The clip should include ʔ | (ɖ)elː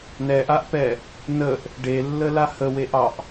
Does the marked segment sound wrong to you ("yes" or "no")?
no